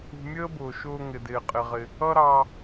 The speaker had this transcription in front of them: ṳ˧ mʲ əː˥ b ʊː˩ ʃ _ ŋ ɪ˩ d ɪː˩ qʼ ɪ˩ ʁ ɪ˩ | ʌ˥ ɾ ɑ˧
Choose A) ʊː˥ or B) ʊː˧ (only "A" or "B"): B